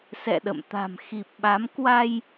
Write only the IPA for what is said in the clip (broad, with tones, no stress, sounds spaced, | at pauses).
s ɛ̰˧˨ ɗ ə̰˧˨ m t̪ a̤˨˩ m x i˨˩ p̚ ɓ a˨˦ m k w a˧ j